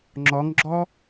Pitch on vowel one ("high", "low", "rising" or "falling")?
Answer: rising